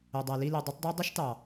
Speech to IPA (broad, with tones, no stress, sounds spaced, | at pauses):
o˨ dˤ æ˨ l i˦˨ l i˨ dˤ ɯ˨˦ tˤ dˤ ɑ˦ dˤ i˦ ʃ t ɑ˨